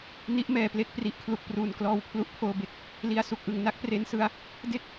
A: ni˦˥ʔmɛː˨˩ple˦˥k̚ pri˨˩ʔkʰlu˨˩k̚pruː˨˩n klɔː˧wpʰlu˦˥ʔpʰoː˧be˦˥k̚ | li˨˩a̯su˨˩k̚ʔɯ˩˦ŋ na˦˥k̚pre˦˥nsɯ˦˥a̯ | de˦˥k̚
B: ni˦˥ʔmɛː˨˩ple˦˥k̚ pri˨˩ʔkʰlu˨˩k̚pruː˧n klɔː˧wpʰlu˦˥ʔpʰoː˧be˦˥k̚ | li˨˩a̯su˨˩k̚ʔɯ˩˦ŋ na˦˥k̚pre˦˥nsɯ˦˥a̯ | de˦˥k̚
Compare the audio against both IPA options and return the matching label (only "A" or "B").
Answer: A